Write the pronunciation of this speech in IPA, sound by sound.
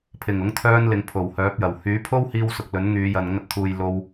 pʰ ɪ˨˩ ŋ ʊ˨˥ ŋ t̪ʰ œː˧ n l ɪ˨ ŋ pʰ o˨˩ w h œː˨˥ p̚ j ɐ˨˩ w h yː˨˥ pʰ o˥ w h iː˧ w s ʊ˨ k̚ l ɵ˨˥ n ŋ yː˨˧ j ɐ˨ n ŋ ɐ˧ t̚ t̪ʰ uː˨ j l o˧ w

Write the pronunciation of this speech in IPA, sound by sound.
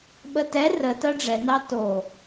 ɓ ə t ɛ r ə t ɜ ɖ͡ʐ ɛ n ɑ t o

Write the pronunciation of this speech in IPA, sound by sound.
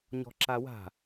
ɲ ɔ̤ ǁ a w a̤

